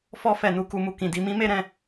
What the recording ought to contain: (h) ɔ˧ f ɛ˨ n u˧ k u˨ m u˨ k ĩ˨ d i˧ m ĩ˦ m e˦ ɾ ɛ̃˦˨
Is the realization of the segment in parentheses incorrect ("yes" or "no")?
yes